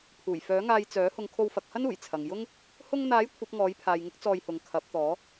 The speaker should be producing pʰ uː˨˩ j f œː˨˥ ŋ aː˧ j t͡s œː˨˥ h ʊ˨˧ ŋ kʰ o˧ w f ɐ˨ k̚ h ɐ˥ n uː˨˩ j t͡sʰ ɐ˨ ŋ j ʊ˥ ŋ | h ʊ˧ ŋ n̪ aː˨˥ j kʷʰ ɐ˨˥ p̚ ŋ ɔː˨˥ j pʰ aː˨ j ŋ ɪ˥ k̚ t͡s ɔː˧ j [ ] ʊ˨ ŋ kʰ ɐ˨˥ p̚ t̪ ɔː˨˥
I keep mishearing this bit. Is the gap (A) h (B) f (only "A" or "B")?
A